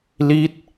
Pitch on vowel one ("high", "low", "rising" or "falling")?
falling